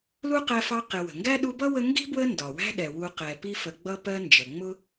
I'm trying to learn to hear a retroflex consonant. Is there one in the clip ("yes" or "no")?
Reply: no